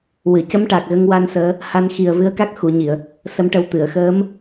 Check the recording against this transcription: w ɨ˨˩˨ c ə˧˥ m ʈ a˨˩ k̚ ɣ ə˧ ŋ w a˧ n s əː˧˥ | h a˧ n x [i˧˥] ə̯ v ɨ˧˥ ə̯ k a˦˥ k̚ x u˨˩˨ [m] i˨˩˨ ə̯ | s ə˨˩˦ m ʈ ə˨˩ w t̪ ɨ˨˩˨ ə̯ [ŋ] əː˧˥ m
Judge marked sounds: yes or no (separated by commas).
no, no, no